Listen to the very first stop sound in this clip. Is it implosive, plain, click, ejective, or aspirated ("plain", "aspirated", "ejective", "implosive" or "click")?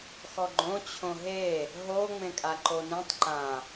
click